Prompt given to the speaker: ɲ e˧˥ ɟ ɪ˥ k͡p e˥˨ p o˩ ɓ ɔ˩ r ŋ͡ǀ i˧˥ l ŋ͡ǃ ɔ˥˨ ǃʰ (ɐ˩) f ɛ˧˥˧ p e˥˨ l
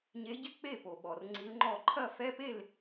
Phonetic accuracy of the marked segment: incorrect: ɐ˥˨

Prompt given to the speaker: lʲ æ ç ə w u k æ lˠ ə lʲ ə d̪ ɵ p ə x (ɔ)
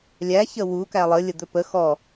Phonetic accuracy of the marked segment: correct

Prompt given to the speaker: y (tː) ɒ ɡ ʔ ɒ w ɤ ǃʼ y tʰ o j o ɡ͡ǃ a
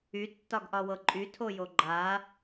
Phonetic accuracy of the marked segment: correct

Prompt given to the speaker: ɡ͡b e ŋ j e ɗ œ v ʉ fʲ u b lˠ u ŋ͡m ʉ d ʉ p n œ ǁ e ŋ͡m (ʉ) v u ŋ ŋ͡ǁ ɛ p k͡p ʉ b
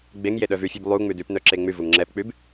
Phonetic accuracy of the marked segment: correct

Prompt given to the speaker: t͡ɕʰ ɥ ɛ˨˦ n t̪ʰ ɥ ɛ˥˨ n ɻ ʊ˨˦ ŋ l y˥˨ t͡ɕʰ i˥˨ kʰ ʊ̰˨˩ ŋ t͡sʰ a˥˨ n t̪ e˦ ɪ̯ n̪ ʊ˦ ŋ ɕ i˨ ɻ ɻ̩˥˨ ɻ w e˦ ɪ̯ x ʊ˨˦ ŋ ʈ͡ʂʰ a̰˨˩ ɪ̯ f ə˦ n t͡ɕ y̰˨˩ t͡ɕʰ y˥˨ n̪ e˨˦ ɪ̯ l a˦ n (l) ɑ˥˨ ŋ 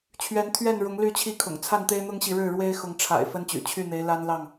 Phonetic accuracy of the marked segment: correct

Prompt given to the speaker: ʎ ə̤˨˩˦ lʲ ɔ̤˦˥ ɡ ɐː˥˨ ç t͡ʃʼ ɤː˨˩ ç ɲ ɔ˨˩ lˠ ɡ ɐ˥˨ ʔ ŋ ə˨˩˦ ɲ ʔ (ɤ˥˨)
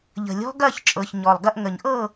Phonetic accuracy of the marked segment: correct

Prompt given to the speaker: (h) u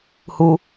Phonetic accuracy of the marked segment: correct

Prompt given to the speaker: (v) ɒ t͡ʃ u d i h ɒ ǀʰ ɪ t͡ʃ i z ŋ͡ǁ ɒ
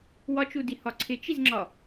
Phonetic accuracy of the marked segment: incorrect: w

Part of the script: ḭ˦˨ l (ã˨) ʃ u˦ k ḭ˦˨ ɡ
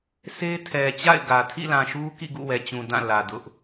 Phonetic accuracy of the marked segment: correct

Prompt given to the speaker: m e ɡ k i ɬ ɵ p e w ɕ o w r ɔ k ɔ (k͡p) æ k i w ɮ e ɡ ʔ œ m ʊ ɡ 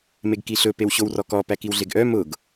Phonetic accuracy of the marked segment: incorrect: p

